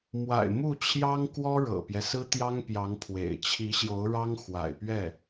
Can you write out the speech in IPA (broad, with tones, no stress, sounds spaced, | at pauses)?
m w a̰˨˩ ɪ̯ m u˥˩ t͡ɕʰ j ɑ˥ ŋ k w ɔ˥ ɻ ɤ̰˨˩ p j ɛ˦ s ɹ̩˥ t̪ j ɑ˥ ŋ p j ɑ˧˥ ŋ pʰ w ḛ˨˩ ɪ̯ t͡ɕʰ i˧˥ ɕ j o˧˥ ʊ̯ ɻ ɑ˥ ŋ x w a̰˨˩ ɪ̯ p ɥ ɛ˥˩